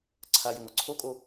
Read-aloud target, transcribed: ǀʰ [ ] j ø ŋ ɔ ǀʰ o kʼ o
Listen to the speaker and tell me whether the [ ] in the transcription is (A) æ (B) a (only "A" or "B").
B